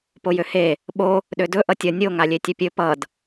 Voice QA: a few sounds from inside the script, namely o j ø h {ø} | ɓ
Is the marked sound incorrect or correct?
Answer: incorrect